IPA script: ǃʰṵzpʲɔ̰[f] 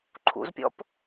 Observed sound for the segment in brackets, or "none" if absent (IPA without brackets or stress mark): p